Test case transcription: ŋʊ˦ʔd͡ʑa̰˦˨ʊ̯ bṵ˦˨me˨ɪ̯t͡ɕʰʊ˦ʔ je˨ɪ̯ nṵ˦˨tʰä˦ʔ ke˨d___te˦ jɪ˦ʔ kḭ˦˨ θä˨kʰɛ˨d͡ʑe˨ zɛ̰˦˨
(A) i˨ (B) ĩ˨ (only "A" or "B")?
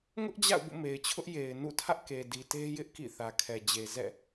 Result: A